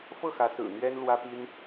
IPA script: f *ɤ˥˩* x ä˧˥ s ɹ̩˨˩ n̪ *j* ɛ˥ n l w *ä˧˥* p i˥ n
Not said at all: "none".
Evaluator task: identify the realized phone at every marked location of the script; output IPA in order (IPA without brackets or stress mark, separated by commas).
ɤ˥˩, ɥ, ä˥